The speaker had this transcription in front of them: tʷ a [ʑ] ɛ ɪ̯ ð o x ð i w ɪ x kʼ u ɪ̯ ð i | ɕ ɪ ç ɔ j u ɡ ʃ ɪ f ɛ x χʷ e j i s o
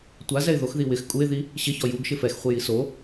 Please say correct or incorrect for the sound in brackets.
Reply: incorrect